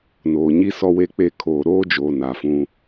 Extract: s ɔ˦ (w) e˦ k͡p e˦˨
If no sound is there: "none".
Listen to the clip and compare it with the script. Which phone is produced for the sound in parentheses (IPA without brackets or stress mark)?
w